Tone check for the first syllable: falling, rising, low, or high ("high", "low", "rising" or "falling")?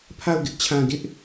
falling